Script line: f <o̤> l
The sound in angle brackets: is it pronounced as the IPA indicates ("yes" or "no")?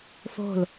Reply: yes